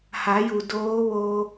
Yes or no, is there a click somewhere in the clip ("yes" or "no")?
no